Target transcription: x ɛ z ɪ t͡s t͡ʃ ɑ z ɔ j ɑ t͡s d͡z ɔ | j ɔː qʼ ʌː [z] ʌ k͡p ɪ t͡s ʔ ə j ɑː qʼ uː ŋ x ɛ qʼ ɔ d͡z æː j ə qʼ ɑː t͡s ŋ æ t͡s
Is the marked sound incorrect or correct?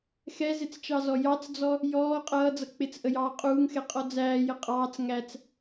incorrect